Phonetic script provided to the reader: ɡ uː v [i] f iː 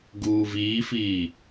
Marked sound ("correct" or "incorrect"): incorrect